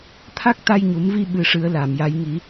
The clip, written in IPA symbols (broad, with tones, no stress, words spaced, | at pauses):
t̪ʰa˦˥k̚t̪a˧jɲu˨˩˦mvi˧ ɓɨ˧ʂɨ˧˥ə̯la˨˩˨mja˧˥j ŋi˨˩˦